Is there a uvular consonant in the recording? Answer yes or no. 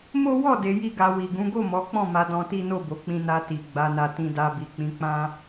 no